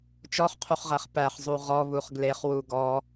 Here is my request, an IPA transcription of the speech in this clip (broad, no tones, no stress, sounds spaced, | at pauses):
t͡ʃ ɔ χ qʰ u χ ʁ æ χ p æ χ zˤ u ʁ ɔ β u χ ɡ l e χ w u ɡ ɔ